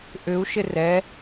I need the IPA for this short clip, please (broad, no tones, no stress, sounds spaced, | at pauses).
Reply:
ʔ ʏ u̯ ʃ ɪ r ɛ